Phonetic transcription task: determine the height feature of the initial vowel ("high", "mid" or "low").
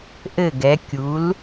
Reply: mid